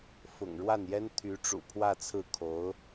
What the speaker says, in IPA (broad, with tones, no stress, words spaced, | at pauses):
fʊ̰˨˩ŋɻwa˥˩njɛ˥n t̪ʰy˧˥ʈ͡ʂṵ˨˩pʰwä˥˧t͡sʰɹ̩˥˩ kʰo˧˥ʊ̯